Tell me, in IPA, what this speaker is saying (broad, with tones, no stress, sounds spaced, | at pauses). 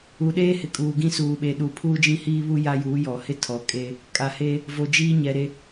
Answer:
u˨ ɗ eː˦ h ɪ˨ kʼ uː˨ ɡ ĩ˦ s uː˨ ɓ e˨ ɗ u˨ pʰ uː˦ d͡ʒ ĩ˦ h iː˦ β u˦ j a˦ j uː˨˦ j ɔ˨ h ɪ˦ tʰ ɔ˨ kʼ e˦ | kʼ a˨ h eː˦ | v o˨ d͡ʒ iː˦ ɲ ɛ˨ ɾ e˦